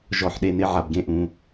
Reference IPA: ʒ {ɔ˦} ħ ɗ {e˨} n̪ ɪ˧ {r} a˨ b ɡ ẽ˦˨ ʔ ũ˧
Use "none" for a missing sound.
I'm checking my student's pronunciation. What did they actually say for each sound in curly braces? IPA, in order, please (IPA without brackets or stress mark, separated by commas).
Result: ɔ˨, e˨, ʕ